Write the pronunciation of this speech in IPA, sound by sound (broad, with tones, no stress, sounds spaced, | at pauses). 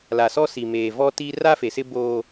l a˨ s ɔ˦ s i˨ m eː˨ v ɔ˦ t i˦ r a˦ f e˨ s ɪ˦ b o˦